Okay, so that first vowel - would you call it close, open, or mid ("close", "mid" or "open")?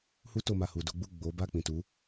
close